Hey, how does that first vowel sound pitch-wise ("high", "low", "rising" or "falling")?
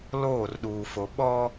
falling